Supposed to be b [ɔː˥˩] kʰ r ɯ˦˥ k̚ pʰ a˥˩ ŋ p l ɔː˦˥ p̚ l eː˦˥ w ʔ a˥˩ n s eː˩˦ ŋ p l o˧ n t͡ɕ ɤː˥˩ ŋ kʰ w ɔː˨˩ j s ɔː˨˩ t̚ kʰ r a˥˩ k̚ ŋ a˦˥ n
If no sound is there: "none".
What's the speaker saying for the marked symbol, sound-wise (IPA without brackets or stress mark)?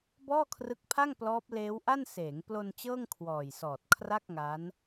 ɔː˥˩